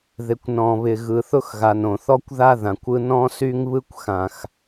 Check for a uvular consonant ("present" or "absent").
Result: absent